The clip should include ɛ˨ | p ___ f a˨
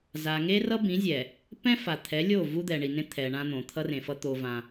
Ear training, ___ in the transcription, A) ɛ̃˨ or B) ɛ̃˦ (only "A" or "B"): B